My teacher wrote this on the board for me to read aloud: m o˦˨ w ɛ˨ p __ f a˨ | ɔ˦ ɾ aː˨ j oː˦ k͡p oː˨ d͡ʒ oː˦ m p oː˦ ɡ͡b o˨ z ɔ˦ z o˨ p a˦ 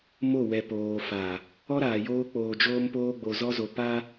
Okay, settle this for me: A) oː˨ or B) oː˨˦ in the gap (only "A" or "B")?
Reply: A